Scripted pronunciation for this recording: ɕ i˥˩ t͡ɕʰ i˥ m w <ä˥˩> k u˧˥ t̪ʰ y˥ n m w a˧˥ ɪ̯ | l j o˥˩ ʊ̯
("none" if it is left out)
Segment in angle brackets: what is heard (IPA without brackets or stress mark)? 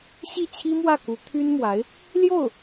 ä˥˩